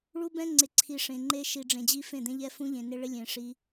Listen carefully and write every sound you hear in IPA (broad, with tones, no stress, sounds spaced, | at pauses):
ɭ u˦ b ɛ̃˦ ŋ͡ǀ ɪ˨ ǀʰ i˨ ʂ ẽ˨ ŋ͡ǃ e˦ ʃ i˨ ɖ͡ʐ ẽ˨ d͡ʑ i˦ f ẽ˦˨ d̪ ẽ˦ ʎ ɛ˦ f ũ˦ ʎ ẽ˨ n ɪ˦ ɭ ɪ˦ lʲ ẽ˨ ʂ i˦